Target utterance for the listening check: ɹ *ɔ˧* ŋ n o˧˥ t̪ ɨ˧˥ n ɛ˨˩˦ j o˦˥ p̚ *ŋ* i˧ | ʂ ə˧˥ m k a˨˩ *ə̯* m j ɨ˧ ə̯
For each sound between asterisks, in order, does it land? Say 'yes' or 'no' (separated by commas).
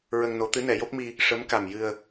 no, no, no